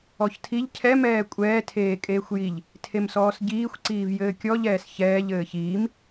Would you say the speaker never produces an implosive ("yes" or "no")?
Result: yes